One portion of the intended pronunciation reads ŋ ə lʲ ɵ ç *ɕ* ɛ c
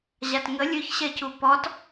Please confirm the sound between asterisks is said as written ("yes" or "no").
yes